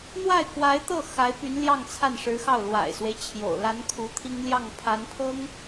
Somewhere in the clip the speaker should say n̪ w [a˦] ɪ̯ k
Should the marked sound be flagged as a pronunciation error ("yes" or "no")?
yes